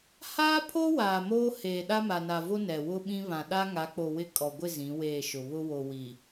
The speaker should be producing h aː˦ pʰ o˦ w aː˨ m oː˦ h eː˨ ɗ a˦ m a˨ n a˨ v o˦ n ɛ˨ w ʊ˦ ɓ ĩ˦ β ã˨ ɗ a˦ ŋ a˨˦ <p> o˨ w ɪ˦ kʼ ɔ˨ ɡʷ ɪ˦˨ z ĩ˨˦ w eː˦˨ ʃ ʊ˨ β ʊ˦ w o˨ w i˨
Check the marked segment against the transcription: incorrect: k͡p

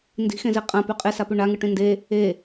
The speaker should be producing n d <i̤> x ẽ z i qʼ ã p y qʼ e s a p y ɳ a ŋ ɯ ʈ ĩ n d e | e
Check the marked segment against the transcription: correct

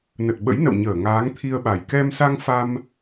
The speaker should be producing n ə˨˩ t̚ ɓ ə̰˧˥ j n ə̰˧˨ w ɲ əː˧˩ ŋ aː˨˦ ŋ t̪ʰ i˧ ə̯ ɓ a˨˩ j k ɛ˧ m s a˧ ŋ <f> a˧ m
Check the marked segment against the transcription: correct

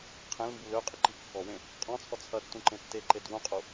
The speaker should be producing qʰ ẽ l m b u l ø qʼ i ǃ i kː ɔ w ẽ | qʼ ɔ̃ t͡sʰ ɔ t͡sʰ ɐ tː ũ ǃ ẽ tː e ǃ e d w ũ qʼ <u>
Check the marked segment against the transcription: correct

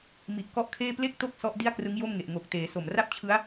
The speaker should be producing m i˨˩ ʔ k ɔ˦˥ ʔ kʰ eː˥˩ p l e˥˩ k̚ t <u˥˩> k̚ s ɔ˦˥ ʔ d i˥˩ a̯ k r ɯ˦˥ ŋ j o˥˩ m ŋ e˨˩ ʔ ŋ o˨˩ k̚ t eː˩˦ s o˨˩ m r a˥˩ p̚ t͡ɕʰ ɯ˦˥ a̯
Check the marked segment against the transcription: incorrect: o˥˩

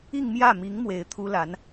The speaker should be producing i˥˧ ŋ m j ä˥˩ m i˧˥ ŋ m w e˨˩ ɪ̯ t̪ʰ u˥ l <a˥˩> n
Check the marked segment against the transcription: incorrect: a˧˥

